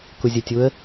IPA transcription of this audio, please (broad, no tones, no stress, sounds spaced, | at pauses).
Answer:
k u zʲ ə tʲ u ə̯